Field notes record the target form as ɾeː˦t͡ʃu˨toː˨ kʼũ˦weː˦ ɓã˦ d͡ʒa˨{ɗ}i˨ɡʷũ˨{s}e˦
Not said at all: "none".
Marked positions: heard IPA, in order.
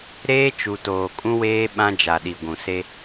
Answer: ɗ, s

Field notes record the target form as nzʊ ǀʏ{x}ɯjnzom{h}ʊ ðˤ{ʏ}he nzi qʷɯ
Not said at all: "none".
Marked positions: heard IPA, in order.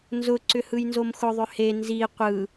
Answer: h, x, ʏ

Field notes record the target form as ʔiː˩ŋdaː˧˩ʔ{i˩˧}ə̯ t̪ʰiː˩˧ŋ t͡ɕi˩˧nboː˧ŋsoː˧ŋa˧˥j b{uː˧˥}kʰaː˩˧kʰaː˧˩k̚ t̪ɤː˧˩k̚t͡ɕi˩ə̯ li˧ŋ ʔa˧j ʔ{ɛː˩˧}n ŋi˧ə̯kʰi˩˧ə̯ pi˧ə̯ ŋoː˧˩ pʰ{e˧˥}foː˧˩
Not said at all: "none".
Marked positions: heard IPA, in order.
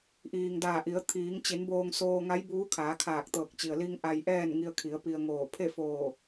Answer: i˩˧, uː˧˥, ɛː˥˨, e˥˨

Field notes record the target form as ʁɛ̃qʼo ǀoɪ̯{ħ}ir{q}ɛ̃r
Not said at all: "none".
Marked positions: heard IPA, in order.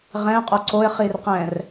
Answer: χ, q

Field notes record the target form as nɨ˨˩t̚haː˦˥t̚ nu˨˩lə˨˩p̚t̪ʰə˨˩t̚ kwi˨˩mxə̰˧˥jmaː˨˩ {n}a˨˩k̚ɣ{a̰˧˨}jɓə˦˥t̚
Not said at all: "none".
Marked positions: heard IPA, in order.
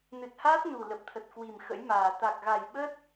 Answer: t̪, a˨˩

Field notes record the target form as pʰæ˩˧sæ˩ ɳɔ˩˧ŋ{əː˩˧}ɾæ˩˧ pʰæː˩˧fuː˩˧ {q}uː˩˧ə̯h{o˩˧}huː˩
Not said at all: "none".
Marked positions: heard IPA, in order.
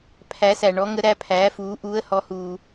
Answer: ə˩˧, ʔ, ɔ˩˧

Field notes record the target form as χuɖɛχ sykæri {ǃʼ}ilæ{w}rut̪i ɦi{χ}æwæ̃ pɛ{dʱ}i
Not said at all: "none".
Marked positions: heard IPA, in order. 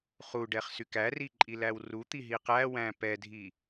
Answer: ǃʼ, w, q, dʱ

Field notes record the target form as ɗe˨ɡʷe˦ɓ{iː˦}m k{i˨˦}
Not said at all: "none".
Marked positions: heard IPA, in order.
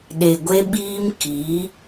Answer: iː˦, i˨˦

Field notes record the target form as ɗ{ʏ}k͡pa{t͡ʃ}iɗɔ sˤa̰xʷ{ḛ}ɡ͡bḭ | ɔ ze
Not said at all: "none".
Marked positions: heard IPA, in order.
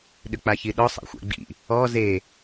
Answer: ʏ, ç, ɛ̰

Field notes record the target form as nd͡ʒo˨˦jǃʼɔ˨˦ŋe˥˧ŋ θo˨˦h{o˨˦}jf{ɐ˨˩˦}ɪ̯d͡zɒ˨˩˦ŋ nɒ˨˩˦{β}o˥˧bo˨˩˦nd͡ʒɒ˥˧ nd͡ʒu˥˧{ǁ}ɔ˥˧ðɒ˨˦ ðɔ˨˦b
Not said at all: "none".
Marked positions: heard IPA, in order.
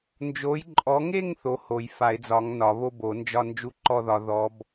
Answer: o˨˩˦, a˨˩˦, β, ǃ

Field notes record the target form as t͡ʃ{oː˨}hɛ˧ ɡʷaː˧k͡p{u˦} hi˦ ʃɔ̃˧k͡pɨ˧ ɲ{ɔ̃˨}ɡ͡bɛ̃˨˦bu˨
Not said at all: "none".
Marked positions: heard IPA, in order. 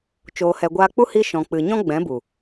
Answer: oː˧, u˦, ɔ̃˦

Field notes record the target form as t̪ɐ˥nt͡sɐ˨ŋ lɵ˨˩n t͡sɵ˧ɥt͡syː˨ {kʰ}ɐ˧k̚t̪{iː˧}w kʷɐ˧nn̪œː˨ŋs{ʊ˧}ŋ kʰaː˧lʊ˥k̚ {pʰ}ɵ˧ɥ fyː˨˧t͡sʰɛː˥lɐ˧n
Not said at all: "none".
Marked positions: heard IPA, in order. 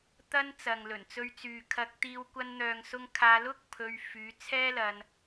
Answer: kʰ, iː˧, ʊ˧, pʰ

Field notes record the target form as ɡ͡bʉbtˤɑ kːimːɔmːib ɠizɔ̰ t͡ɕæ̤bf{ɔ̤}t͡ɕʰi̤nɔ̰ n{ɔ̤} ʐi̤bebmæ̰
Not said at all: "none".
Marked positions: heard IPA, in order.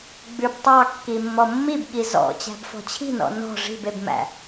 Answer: ɔ̤, ɔ̤

